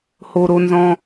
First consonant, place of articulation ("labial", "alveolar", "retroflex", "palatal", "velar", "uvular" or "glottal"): glottal